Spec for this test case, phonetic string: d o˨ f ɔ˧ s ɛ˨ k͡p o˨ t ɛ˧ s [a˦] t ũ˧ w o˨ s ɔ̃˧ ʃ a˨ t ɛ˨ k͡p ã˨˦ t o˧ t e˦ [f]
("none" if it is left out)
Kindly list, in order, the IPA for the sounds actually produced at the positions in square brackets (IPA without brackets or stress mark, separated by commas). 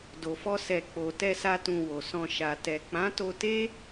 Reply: a˦, none